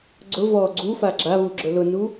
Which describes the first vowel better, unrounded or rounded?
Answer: rounded